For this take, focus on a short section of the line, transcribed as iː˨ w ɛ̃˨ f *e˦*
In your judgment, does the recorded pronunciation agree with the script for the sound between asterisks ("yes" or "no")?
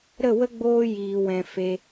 no